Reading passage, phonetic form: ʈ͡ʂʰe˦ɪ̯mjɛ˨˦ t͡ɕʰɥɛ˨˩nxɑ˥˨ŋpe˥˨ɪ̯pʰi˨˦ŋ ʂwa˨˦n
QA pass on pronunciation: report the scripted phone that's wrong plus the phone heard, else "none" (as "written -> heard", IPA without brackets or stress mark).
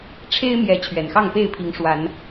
none